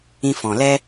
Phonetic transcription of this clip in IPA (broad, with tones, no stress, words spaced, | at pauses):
ĩ˧fɔ̃˨lɛ˦